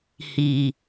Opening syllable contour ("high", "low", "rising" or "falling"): low